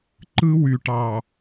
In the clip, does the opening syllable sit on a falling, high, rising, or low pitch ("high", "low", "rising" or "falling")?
high